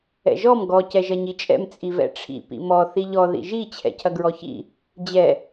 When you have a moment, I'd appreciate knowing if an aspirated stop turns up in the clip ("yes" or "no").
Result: yes